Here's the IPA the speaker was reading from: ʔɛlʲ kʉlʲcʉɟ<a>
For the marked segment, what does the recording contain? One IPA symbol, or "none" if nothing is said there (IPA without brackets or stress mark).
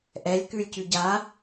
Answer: a